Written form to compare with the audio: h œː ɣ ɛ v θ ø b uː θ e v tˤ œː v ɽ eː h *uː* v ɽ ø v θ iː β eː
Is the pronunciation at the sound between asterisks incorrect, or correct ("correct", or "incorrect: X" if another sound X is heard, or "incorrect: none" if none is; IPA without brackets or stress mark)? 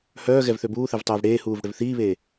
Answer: correct